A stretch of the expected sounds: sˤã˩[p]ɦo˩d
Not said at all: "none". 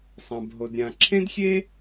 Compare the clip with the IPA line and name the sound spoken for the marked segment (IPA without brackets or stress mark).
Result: b